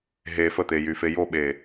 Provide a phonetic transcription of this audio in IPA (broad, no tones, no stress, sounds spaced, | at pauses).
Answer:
ɦ e f ə t̪ e j y f e j o ɓ e